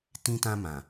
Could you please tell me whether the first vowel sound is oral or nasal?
nasal